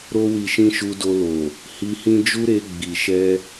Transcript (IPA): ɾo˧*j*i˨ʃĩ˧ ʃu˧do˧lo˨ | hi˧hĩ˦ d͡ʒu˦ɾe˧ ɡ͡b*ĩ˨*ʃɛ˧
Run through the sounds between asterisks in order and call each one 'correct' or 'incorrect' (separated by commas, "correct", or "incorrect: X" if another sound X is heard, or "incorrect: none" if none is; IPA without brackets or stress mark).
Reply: incorrect: w, incorrect: i˨